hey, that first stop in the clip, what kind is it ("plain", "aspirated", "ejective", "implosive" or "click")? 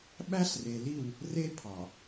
implosive